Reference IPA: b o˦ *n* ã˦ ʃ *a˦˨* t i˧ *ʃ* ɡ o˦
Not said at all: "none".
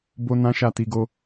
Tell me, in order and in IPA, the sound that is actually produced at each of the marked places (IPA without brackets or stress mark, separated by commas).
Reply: n, a˦˨, none